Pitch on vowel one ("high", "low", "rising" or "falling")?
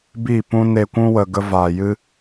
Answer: falling